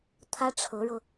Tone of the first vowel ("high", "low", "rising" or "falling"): high